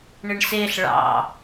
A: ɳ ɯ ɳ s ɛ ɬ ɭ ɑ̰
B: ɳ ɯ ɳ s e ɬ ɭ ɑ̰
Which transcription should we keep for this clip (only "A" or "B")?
B